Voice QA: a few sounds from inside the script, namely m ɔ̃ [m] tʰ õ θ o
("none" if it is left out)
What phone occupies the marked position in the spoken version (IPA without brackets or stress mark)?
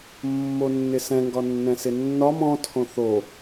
none